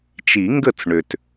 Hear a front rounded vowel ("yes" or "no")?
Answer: yes